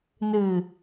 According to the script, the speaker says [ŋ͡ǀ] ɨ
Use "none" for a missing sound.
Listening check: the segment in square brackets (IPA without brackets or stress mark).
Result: n